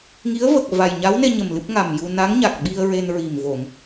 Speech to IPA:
ŋ i˧˥ ə̯ v ə˨˩ k̚ v a˨˩ j ɲ a˧˥ w n e˧ ɲ ə˨˩ m l ɨ˦˥ p̚ ŋ a˨˩ m j u˧ n a˧˥ ŋ ɲ a˨˩ k̚ ɓ i˧ ə̯ ɹ e˧ n ɹ i˨˩ m v o˨˩˨ ŋ

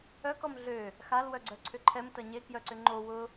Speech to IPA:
œ k ɔ m ɮ ø | x a l w œ ɡ͡ǀ œ ǀʰ ʏ ǃʰ ɛ m t ɐ ɲ e k j œ ǀ ʏ ŋ͡ǃ o w ʊ

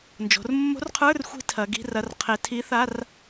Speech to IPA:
n d͡ʒ o̤˩˧ r mː o̤˧˥ r qʰ ə˞˧˥˧ r xʷ i̤˧ tʰ ɐ˩˧ ɡ i̤˧˥˧ r ɐ˧˥˧ r qʰ e˧˥ tʰ i˧˥ θ a˧˥˧ r

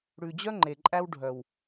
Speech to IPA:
ɽ ʉ˨ d͡ʑ œ˦ ŋ͡ǃ e˨ ǃʼ æ˦ w ɖʱ œ˨ w

